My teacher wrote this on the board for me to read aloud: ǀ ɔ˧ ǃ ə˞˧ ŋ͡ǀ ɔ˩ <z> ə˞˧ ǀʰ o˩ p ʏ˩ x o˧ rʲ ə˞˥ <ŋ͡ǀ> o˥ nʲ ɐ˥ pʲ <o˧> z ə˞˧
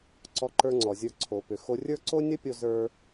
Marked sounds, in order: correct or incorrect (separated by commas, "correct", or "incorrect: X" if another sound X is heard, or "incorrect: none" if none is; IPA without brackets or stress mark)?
incorrect: zʲ, incorrect: ǀ, correct